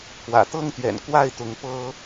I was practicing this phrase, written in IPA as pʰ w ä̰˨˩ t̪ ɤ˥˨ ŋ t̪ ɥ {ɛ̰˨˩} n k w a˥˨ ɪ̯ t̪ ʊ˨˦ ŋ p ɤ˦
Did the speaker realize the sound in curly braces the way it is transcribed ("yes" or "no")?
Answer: yes